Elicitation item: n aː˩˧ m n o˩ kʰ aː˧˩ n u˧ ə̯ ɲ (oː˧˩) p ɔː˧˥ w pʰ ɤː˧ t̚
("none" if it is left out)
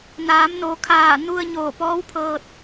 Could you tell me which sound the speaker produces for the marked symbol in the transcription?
oː˧˩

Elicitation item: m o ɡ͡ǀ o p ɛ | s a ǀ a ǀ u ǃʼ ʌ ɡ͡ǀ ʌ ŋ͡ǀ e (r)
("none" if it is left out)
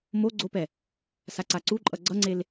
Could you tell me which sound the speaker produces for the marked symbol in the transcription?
l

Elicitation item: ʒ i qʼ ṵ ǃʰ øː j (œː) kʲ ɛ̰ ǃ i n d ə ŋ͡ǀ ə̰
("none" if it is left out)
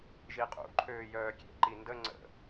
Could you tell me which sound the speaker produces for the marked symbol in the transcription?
œː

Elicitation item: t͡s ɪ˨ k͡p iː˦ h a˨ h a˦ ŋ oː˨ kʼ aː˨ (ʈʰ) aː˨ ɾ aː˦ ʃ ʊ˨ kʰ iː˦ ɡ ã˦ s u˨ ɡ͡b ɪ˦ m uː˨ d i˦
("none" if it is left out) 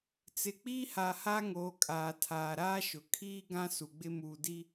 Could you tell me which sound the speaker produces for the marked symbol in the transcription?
tʰ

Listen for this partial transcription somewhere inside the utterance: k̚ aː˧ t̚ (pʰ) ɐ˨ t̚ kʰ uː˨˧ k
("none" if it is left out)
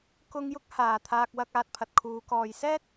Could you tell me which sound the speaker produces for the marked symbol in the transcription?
pʰ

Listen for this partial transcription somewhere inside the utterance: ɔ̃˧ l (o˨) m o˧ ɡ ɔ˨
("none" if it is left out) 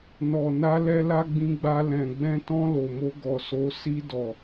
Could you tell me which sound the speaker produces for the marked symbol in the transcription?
o˨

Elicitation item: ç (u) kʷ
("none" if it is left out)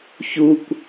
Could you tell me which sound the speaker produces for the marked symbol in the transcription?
u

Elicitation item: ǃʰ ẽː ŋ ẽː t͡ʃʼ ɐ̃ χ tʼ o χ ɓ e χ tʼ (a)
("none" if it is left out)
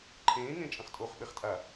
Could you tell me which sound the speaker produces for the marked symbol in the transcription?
a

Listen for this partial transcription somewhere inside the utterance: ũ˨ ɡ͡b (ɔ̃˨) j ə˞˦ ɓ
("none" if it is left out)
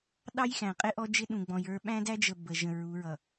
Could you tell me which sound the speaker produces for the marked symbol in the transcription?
ɔ̃˨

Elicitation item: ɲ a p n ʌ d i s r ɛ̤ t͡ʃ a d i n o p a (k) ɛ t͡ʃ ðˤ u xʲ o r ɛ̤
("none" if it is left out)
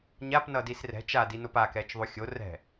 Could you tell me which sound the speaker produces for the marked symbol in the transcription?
k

